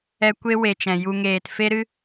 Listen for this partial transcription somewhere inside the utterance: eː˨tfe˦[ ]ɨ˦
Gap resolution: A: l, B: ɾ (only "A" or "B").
B